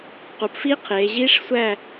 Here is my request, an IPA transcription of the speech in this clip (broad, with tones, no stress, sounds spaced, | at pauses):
q u˩˧ p f i˦˥ qʰ eː˩˧ ʑ iː˦˥ ʂ sʷ æ˥˨